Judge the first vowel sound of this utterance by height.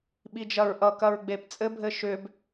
high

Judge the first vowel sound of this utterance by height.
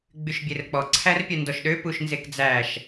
high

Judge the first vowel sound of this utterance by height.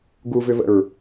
high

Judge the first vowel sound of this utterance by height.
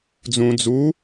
high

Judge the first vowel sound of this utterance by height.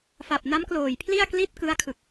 low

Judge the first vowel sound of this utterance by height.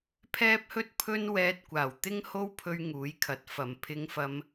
mid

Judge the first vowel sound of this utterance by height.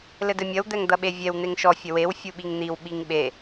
mid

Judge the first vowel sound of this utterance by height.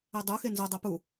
mid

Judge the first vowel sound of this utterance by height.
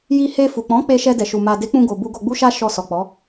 high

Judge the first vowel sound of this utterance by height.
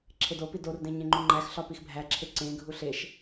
mid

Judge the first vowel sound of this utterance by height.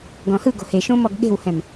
mid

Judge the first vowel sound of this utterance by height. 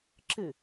high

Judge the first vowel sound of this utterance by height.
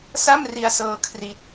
low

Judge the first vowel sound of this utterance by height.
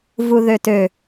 high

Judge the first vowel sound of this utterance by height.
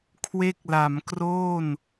mid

